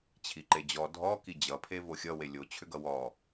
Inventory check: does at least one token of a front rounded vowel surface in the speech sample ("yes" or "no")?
yes